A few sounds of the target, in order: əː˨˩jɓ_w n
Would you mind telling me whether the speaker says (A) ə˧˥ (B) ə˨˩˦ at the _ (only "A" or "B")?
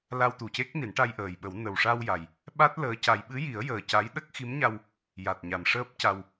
B